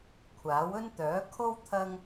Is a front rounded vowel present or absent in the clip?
present